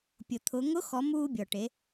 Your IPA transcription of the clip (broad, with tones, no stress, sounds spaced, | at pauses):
pʲ ʊ˩ t̪ʰ ʊ˩˧ ŋ ʊ˧˥ x ɔ˩˧ m uː˧ bʲ ɔ˩ ʈ e˩˧